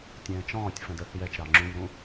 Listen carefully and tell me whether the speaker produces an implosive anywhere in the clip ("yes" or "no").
no